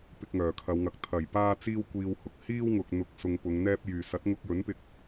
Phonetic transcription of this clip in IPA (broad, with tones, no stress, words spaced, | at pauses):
pɪ˧k̚ŋœː˨˩kʰɐ˨˧wŋɐ˨k̚ t̪ʰɐ˨˩j paː˥t͡siː˥wkʷiː˧whʊ˨k̚ hiː˥wŋʊ˨k̚ n̪ʊ˨k̚sʊ˨ŋ pʊ˨˧ŋ n̪ɛː˧p̚jyː˨˩ sɐ˨˥t̚ŋʊ˧k̚jɵ˨˥npɪ˧k̚